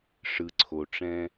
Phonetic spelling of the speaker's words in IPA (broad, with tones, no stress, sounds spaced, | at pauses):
ʂ ɯ˩ ǀʰ o˩ ʈ͡ʂ ɛ̃˧